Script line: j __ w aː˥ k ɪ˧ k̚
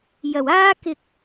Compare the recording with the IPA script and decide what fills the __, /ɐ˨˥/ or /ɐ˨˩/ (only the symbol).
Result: ɐ˨˩